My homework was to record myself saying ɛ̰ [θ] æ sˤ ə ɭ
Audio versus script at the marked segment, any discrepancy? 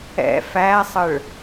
yes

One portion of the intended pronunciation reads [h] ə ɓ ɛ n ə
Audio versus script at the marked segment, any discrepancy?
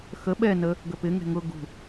yes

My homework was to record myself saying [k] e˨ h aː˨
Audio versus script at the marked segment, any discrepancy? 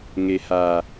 yes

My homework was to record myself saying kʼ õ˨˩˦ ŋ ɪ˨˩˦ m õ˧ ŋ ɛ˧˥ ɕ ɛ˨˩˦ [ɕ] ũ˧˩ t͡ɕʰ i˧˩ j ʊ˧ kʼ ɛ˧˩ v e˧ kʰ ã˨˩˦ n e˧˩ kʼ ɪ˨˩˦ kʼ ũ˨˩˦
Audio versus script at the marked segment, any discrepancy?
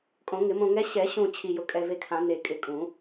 no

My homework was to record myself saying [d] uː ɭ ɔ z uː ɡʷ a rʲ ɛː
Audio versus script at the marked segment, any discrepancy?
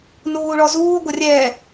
yes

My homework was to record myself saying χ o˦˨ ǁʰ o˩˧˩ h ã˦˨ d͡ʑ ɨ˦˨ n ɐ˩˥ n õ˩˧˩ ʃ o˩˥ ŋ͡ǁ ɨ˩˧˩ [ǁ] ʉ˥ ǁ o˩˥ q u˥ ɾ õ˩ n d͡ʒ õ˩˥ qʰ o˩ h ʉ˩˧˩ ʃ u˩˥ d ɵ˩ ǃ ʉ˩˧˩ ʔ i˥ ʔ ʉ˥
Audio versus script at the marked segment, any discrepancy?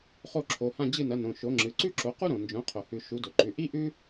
yes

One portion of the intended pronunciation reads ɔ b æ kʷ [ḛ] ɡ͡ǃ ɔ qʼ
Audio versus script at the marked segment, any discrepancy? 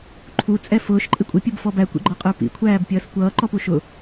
yes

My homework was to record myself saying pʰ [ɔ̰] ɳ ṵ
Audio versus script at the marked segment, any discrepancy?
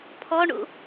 yes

